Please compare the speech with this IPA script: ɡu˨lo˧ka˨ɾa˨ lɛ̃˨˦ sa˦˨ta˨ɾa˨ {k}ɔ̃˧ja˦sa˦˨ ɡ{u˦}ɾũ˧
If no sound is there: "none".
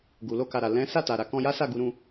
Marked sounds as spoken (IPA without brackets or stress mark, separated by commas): k, u˧